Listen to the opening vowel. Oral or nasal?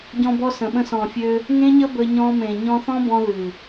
nasal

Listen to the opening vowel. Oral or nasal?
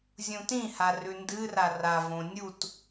nasal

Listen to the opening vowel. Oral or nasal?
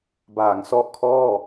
oral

